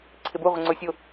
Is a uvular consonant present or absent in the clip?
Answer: present